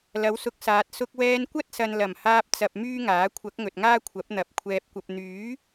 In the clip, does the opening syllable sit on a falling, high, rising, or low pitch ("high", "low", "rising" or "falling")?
rising